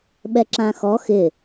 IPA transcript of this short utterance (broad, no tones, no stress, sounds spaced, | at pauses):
ɓ ɛ ǁ ã x ɔ x ɪ